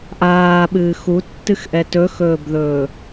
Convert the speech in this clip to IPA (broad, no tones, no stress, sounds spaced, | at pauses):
ʔ aː ɓ ɨː x u tː ɨ x ʔ ɛ t ɵ x ɵː b ð ɵː